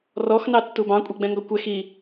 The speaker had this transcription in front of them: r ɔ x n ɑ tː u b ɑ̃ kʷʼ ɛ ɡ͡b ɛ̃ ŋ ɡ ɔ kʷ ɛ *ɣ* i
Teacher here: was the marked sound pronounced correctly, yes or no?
no